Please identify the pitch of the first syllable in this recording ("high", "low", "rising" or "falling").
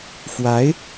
rising